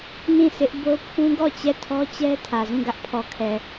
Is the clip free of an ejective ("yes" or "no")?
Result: yes